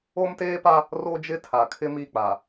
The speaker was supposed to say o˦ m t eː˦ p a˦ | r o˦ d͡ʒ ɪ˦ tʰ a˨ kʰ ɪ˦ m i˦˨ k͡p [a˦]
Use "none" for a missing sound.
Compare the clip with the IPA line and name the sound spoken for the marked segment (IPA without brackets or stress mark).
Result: a˨